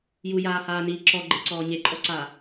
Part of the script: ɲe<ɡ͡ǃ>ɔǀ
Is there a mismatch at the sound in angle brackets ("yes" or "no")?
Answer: yes